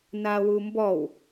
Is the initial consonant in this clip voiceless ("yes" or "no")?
no